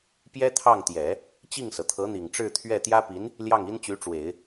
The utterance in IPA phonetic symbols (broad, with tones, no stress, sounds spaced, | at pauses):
p j ɛ˥ t̪ʰ ɑ˥˩ ŋ t̪ j ɛ˨˩˦ | t͡ɕ i˥˩ ŋ s ɤ˩ t̪ʰ ɤ˧˥ n̪ i˨˩ ŋ ʈ͡ʂ ɻ̩˥˧ t̪ʰ ɥ ɛ˥˩ t̪ j ä˥ p i˧˥ n | l j ɑ˥˩ ŋ i˥ n t͡ɕ y˧˥ ʈ͡ʂ w e˨˩˦ ɪ̯